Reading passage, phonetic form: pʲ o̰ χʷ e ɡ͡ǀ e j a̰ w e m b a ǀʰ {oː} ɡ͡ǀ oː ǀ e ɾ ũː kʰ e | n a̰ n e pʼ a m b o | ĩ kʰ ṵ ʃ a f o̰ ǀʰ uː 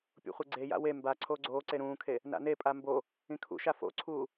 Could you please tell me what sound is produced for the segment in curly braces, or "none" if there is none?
oː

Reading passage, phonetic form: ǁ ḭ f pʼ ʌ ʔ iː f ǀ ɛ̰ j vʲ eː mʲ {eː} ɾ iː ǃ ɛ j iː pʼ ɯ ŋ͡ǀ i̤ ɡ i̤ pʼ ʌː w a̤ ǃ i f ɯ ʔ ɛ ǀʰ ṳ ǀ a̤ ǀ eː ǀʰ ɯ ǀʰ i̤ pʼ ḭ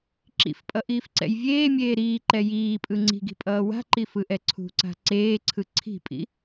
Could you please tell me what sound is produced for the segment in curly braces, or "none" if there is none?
eː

